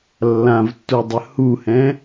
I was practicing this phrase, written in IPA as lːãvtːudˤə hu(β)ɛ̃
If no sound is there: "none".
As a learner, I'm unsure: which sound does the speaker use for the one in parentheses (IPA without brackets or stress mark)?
h